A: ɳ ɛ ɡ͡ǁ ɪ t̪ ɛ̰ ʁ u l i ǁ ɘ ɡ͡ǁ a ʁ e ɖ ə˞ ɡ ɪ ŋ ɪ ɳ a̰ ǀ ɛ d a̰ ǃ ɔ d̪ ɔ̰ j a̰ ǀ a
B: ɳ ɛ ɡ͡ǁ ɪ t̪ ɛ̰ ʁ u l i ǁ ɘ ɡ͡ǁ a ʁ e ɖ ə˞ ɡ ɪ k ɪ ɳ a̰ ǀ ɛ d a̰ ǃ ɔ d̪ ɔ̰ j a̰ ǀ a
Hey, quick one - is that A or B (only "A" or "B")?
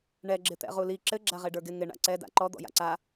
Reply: A